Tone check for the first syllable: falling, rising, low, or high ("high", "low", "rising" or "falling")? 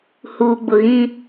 low